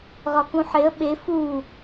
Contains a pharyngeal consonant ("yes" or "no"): yes